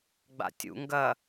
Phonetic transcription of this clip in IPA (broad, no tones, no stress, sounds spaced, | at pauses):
ɡ͡b a̰ tʲ ṵ ŋ ɡ ɐ